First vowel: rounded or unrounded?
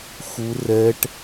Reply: rounded